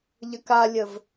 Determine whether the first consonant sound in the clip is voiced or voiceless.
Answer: voiced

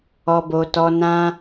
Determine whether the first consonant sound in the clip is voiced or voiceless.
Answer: voiced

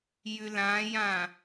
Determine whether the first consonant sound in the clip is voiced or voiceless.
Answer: voiced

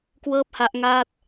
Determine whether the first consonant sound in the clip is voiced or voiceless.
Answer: voiceless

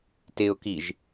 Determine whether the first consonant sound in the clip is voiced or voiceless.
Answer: voiceless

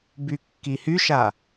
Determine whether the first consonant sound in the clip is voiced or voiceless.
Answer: voiced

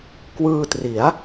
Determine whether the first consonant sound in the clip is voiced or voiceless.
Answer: voiceless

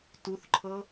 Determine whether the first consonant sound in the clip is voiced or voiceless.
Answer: voiceless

